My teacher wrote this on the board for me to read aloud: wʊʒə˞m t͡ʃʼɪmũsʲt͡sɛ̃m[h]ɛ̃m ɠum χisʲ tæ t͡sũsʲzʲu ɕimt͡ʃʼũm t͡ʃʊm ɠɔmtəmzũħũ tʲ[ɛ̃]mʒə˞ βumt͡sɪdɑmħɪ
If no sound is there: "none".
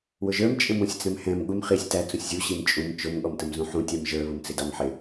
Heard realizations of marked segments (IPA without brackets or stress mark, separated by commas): h, ɛ